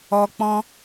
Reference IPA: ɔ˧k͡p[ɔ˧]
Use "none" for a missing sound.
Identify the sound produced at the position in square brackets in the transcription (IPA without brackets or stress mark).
ɔ̃˧